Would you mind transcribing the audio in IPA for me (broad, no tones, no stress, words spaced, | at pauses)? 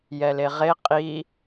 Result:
jɛleʁe qʼi